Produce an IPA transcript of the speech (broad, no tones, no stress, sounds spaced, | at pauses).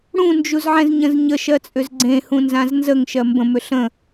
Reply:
ɽ ũ n d͡ʒ u z ʕ ɛ̃ z ɲ ə̃ z ɲ ə ʃ ɜ t͡sʼ ʏ z ɡ͡ǀ ẽ h ũ n z ã z n z ə ŋ ʃ ɜ m b ə̃ m ʏ ɬ ə̃